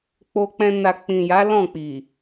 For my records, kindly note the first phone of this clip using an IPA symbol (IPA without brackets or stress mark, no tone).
k͡p